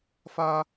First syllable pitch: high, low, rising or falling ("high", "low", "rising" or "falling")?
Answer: high